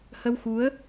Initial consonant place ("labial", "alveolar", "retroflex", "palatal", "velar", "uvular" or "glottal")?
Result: glottal